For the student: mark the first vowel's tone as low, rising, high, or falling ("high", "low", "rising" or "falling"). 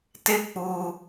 falling